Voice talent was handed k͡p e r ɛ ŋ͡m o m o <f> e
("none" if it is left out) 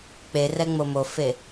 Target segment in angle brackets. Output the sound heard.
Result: f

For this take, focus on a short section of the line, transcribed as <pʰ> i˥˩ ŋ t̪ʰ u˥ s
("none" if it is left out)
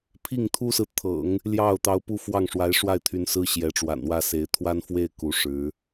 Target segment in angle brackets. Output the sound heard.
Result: pʰ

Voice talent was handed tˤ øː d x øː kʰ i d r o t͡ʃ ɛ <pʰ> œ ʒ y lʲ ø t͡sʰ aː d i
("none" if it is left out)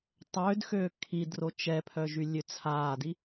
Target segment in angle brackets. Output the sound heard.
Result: pʰ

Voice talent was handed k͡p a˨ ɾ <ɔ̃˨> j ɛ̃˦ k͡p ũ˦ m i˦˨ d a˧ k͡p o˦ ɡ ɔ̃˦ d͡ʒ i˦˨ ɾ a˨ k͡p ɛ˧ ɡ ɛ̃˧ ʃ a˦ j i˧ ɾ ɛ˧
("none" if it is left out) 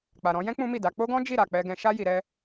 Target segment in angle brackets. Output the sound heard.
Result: ɔ̃˧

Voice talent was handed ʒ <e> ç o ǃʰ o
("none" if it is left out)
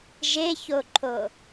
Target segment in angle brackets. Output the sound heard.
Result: e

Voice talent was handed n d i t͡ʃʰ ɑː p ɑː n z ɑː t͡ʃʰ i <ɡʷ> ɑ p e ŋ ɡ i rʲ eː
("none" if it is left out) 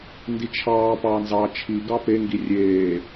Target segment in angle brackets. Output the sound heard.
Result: ɡ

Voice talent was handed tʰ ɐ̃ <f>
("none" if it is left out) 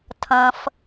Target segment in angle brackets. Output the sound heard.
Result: f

